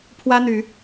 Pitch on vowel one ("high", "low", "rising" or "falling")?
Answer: high